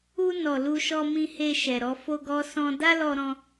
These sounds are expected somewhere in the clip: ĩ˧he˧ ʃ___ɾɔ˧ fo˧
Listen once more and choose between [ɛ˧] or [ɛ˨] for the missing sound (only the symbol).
ɛ˨